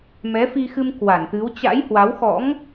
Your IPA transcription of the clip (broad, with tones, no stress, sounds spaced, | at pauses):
m ɛ˨˦ f i˧ x ɨ˧ m k w a˧˩ n t̪ ɨ˨˦ w t͡ɕ a̰˧˥ j h w a˨˦ w x ɔ̰˧˥ ŋ